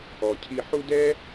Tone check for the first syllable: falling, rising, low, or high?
low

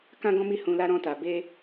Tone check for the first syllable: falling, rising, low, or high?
high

